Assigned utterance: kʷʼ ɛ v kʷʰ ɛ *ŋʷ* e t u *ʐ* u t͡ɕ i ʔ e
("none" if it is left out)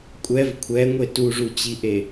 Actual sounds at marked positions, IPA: ŋʷ, ʐ

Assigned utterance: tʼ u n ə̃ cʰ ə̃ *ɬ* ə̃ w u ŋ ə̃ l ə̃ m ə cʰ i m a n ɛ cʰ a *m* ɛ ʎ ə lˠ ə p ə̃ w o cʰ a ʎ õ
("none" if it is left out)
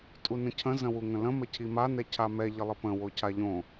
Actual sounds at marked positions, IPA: z, m

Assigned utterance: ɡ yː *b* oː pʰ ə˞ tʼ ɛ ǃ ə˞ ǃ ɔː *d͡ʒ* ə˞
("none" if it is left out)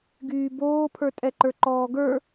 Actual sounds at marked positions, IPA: b, ɡ

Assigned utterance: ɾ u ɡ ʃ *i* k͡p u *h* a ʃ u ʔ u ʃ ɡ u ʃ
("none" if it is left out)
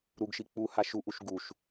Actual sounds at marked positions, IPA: i, h

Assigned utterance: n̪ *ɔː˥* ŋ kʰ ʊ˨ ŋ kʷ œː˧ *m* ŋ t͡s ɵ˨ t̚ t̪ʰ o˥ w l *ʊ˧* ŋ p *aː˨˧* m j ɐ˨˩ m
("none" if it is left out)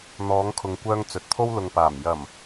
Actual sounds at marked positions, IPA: ɔː˨˧, none, ʊ˨, aː˨˩

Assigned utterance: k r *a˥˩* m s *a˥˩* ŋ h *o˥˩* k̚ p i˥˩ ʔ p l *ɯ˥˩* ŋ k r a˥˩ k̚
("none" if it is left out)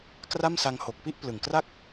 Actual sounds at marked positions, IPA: a˥˩, a˧, o˨˩, ɯ˨˩

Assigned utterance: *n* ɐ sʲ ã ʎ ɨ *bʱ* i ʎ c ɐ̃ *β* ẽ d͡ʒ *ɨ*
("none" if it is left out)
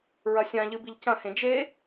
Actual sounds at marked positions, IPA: ɹ, b, h, e

